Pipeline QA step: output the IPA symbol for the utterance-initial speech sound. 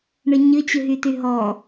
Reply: ɳ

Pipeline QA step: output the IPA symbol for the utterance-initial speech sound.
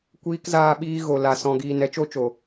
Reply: kʷ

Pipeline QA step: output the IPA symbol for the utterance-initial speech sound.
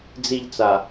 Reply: d͡z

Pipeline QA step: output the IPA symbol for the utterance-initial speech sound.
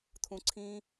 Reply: t̪ʰ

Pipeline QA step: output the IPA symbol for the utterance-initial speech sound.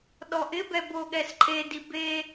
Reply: ɗ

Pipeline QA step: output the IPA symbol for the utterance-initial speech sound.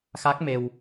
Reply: x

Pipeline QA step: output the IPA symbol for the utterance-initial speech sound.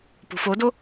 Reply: p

